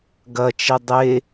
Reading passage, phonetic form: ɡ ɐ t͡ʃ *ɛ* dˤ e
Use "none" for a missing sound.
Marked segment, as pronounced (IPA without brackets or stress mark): ɛ